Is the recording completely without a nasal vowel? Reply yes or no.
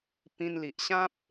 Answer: no